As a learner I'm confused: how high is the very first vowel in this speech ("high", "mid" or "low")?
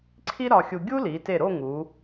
high